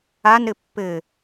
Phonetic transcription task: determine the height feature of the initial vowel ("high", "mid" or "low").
low